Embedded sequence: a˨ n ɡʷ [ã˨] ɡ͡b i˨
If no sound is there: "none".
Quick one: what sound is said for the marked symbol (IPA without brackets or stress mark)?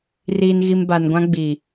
ã˦